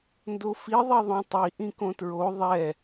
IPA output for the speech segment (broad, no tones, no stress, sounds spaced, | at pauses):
n d o f i ðˤ i ðˤ õ tˤ i ʔ ĩ k õ t ɹ o ðˤ ɛ